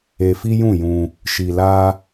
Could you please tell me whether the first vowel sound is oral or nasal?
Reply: oral